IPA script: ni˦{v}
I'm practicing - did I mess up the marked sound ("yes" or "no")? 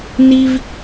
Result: no